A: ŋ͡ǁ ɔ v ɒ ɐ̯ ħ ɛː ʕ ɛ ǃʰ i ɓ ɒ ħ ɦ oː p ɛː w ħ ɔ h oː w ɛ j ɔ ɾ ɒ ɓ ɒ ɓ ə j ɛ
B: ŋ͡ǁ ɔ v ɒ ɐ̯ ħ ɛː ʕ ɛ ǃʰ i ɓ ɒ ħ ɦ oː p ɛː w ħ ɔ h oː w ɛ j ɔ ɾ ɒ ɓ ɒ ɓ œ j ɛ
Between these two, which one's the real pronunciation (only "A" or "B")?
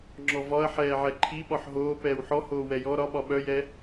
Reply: B